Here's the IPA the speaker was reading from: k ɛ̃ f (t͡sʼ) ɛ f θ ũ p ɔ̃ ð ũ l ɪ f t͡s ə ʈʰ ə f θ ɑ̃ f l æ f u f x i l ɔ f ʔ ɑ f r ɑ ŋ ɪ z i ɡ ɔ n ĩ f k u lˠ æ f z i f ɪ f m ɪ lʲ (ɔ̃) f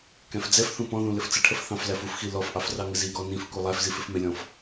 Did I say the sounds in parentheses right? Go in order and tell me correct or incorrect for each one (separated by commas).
incorrect, correct